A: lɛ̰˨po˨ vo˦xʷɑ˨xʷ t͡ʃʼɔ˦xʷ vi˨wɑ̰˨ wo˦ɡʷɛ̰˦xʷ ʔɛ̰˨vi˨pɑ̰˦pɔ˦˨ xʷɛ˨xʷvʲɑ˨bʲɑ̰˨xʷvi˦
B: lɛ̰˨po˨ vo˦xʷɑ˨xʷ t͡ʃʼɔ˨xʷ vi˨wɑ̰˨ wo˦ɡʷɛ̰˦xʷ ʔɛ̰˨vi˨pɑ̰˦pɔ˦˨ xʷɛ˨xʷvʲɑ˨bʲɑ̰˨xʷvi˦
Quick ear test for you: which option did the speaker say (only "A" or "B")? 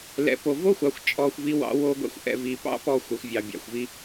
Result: B